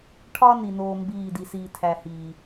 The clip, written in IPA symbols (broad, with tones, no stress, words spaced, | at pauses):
ʈʰɒ˦ ni˧noː˦mbiː˦˨ di˧siː˧tʰæ˧hiː˨